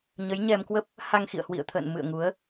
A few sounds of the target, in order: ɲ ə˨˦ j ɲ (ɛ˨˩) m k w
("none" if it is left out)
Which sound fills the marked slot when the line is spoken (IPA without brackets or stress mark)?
ɛ˧